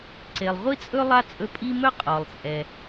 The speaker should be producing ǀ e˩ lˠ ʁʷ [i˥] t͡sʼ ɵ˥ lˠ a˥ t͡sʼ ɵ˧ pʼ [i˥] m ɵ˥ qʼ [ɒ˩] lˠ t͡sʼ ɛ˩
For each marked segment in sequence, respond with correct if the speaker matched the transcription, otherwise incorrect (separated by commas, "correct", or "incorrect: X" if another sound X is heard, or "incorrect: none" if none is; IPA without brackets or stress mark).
correct, correct, correct